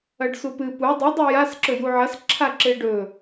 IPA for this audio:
ɐ ɖ s u p ɨ p u dˤ ʉ dˤ u j a s ǁ ɵ j u ʕ ɐ s ǁʰ a ǁ e ɖ ɵ

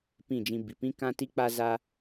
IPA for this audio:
p ĩ˦˨ d͡ʒ ĩ˧ b i˨ p ĩ˦ k ã˦ t i˦ k͡p a˦ z a˦

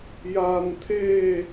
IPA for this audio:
j aː˩ n t̪ʰ eː˧˩

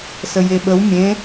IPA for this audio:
s ə j e ɓ ə w mʲ ẽ

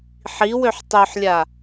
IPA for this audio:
ħ i w ø ħ tˤ ø ħ lʲ a

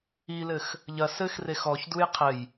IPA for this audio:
i l ɘ x | ʎ ɐ s ɘ x r e x ɔ ç d u j qʰ ɘ j

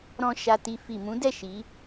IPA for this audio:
ɾ ɔ̃˧ ʃ a˧ t i˧ f i˨ m ũ˨˦ d ɛ˦˨ ʃ i˨˦

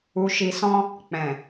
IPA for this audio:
u˨ ʃ i˨ s ɔ̃˧ | k͡p ɛ̃˨

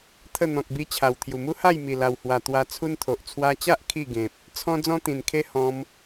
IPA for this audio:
t̪ʰ ə˥˧ n̪ ɔ̃˨ k̚ b i˧ t͡ɕʰ a˨˩ w t̪ʰ j u˨˩ m u˦ h a˥˧ j m i˨˩ l a˨˩ w h w a˨˩ t̪ w a˧ t͡sʰ u˦ n t̪ʰ o˨ ʔ t͡sʰ w a˧ t͡ɕ a˦ ʔ kʰ i˥˧ ɡ ẽ˨ p̚ | t͡sʰ ɔ̃˧ d͡z ɔ̃˦ t̪ ĩ˨˩ n kʰ e˦ h ɔ̃˧ m

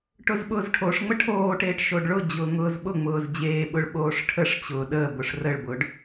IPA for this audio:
ʈ ʊ z ɓ ʊː z ʈʰ o ʂ ŋ͡m ə ʈʰ oː ʈ eː ʈ ʃ o ɖ ɭ ʊ d͡ʑ ʊː ŋ ʊː z ɓ ʊ ŋ͡m ʊː z d͡ʑ eː ɓ ʊ ɭ ɓ oː ʂ ʈʰ ə ʂ t͡ɕ ʊː ɗ əː b ʊ ʂ r ə ɭ b ʊː ɖ

